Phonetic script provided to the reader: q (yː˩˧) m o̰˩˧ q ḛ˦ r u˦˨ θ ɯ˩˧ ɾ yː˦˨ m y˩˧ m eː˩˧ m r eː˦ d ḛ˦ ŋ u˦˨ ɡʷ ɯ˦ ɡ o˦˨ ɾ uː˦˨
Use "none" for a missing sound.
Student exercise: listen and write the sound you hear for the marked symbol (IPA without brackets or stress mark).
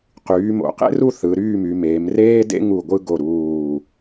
yː˩˧